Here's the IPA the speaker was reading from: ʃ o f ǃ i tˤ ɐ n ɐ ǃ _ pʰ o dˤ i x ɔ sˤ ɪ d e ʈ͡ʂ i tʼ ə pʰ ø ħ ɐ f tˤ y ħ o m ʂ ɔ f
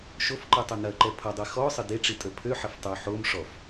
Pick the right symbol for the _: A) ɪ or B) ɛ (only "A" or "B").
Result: B